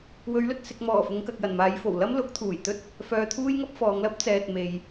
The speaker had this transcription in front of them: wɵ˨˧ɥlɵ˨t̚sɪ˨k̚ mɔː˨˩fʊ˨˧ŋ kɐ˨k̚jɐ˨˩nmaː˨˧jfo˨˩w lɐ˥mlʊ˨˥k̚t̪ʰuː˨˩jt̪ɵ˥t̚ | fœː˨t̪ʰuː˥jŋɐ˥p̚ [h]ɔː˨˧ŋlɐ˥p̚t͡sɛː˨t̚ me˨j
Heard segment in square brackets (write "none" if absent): f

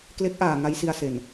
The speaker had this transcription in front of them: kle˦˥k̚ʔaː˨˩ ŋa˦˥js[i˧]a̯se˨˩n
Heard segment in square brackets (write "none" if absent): i˧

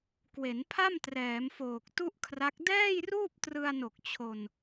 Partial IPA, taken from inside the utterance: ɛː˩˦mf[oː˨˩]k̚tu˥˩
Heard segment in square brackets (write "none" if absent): oː˨˩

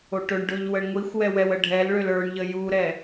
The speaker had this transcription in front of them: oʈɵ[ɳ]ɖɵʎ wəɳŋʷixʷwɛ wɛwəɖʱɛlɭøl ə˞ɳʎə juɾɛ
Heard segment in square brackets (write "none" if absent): ɳ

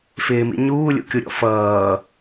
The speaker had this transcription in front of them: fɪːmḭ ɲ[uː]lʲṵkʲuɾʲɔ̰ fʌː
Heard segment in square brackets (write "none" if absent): uː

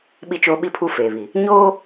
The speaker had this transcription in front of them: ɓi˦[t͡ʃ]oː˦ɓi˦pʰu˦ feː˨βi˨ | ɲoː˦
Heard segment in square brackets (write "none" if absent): t͡ʃ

